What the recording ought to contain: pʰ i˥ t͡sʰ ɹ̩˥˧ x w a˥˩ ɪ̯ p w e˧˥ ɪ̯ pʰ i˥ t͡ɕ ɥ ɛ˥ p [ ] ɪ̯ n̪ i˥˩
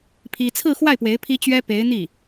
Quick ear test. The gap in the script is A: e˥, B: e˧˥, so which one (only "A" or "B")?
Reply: B